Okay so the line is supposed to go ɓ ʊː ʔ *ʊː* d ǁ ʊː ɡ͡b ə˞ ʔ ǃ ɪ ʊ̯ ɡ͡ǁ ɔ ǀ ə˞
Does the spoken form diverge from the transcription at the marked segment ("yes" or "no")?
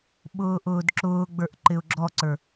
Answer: no